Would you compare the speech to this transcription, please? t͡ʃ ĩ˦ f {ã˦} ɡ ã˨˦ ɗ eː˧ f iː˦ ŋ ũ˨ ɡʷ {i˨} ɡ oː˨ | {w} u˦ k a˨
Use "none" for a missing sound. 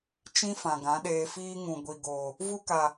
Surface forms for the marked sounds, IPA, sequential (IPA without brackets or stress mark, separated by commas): ã˨, i˨, v